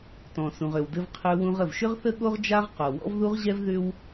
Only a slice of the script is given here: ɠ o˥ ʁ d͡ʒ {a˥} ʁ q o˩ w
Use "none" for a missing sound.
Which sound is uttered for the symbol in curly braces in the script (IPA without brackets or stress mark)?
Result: a˥